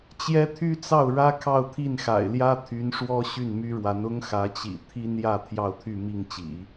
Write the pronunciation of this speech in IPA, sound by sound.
t͡ɕ j ɛ˥ t̪ʰ y˥ t͡s ɑ˥˩ ʊ̯ ɻ ä˥ kʰ ɑ˥˧ ʊ̯ t̪ʰ i˥˩ n x a̰˨˩ ɪ̯ l j ä˥ t̪ʰ y˧˥ n ʂ w ɔ˥ ɕ y˥˩ n m y˥ ɻ w a˧˥ n ʊ˥ ŋ x ä˧˥ t͡ɕ ḭ˨˩ t̪ʰ i˥ n j ä˥˧ t̪ʰ j ɑ˥˧ ʊ̯ t̪ʰ y˥˧ m i˥˩ ŋ t͡ɕ ḭ˨˩˦

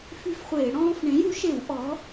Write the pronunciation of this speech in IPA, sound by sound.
f y˦ f χʷ eː˧˩˧ ɽ ɔ̃ː˦ f ɳ ẽ˩˥ j u˩˥ ʃ e˧˩˧ w ʔ ɔ˩˥

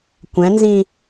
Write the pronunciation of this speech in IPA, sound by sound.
kʷ ɛ̃ n z ĩ

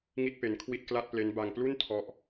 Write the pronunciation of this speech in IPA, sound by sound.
ŋ i˥˩ t̚ p e˧ n kʰ w i˥˩ t̚ k l a˥˩ t̚ p l e˦˥ n b a˧ ŋ p l u˥˩ n tʰ ɔ˦˥ ʔ

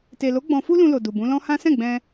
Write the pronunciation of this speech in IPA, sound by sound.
t e˨ l o˨˦ ɡ͡b ɔ̃˧ f u˦ l ũ˧ l o˨ d u˨ b ũ˨˦ l ɔ̃˦ h ã˦ s ɛ̃˦˨ ɡ͡b ɛ̃˧

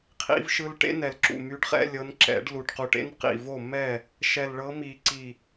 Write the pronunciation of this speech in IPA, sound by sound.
qʰ ḭ˦˥ v ʃ ɯ˦˥ l ʈ ḛ˦˥ n ɛ˨˩ l ǁ ṵ˨˩ m y˨˦ ɖ χ ɛ̰˧˥˧ lʲ ɤ˨˦ n ǁ ɛ̰˨˩˦ ɖ l u˨˩ ʈ q u˨˩ ʈ ḛ˧˥˧ n q ḭ˨˩ v o˥˩ m ɛ˥˩ | ʃ ɛ˨˩ l ɭ ɤ˨˦ m i˨˩˦ ǀ i˨˩

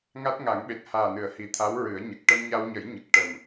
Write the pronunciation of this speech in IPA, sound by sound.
ŋ a˦˥ t̚ ŋ a˨˩˦ ŋ ɓ e˨˩ t̚ h aː˨˩ n ɨ˨˩˨ ə̯ h i˨˩ t̪ʰ a˧˥ w ɹ ɨ˨˩˦ ə̯ ɲ ə˨˩ k̚ ʈ ə˧ m ɲ a˧ w ɲ ə˨˩˦ j ɲ ə˨˩ k̚ ʈ ə˨˩ m

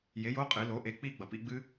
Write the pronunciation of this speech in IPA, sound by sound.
j e˩˥ j o˧˥˧ qʼ ɨ˩˧ l o˩˧ ʔ e˩˥ k͡p i˦˥ ɡ͡b ɐ˩ p ḭ˧˥˧ ɡ͡b ɨ˦˥

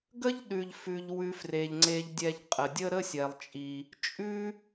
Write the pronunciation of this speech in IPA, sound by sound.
ɡ ə˥ ʎ ɗ ʉ˩ ʎ f ʉ˩ ʎ w ʉ˨ f r e˩ ʎ ŋ͡ǀ e˨ ʎ dʲ ɛ˨ ʎ qʼ ə˩ dʲ ə˥ ɾ ə˦ sʲ ɛ˩ lˠ t͡ʃʼ i˩ | t͡ʃʼ ʉ˥

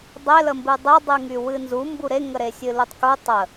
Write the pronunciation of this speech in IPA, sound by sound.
dˤ e l ə m b ɨ dˤ e dˤ ɨ ŋ y w ɨ n z u m b u ɾ e ŋ ə ɾ e sʲ ɨ l u tˤ k u tˤ ə

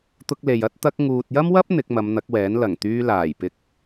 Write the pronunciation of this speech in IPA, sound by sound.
t̪ ʊ˧ k̚ l e˨ j ɐ˧ t̚ t̪ ɐ˧ k̚ ŋ uː˨ t̚ j ɐ˥ m w ɐ˥ p̚ n̪ ɪ˨˥ k̚ m ɐ˨˧ m n̪ ɐ˨˥ k̚ w ɛː˨˥ n l ɐ˨˩ ŋ t̪ yː˧ l aː˨˩ j p ɪ˨ k̚

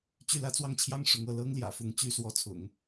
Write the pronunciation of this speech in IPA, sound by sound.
t͡ɕ y˥˩ l ä˥ t͡s w ɑ˥˩ ŋ t͡ɕʰ j ɑ˥ ŋ ʂ ʊ˧˥ ŋ ɤ˥˩ l ɤ˥ ŋ l j ä̰˨˩ f ʊ˧˥ ŋ t͡ɕ y˥ s w ɔ˧˥ t͡sʰ ʊ̰˨˩˦ ŋ

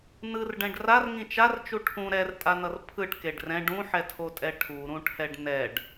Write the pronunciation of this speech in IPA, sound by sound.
n ɯ r ɖ ɛ̃ ɖ r a r ŋ ĩ t͡ʃ a r t͡ʃ u ʈʰ ũ ɾ ɛ r tʼ a n ʌ r pʰ ɯ ʈ k e ɖ r ɛ̃ ɖ ũ ħ ɛ tʰ o tʼ ɛ ʈʰ u ɾ ũ ʈʰ ɛ ɖ n ɛ ɖ

